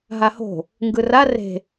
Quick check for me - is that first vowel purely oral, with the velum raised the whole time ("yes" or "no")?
yes